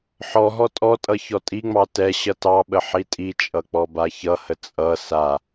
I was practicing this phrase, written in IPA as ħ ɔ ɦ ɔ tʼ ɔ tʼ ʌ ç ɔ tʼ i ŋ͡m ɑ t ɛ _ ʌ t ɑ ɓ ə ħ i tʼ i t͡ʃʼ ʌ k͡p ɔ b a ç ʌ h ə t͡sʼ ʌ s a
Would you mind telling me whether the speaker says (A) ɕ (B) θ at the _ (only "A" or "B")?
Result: A